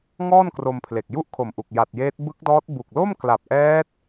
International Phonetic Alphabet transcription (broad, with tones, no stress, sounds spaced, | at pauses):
ŋ ɔː˥˩ n k r o˧ m pʰ l e˨˩ k̚ j u˥˩ ʔ kʰ o˨˩ m ʔ u˨˩ k̚ j a˨˩ t̚ j eː˦˥ t̚ b ɯ˦˥ k̚ d ɔː˦˥ t̚ b u˨˩ k̚ l o˥˩ m k l a˨˩ p̚ ʔ ɛː˦˥ t̚